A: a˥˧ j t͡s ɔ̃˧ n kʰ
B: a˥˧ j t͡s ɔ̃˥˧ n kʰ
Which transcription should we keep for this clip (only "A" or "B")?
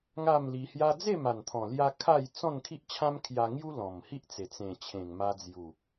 B